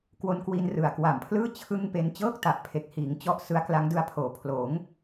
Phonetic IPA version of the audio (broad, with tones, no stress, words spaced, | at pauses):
kwo˧nkwi˧n rɯ˨˩a̯ kwa˨˩mpʰlɯː˥˩ t͡ɕʰɯ˥˩ŋpe˦˥n t͡ɕɤː˥˩k̚ta˨˩ʔpʰe˨˩k̚hiː˩˦ŋ t͡ɕɔ˥˩ʔsɯ˦˥a̯ kla˦˥ŋdɯ˧a̯pʰoː˨˩ pʰloː˩˦ŋ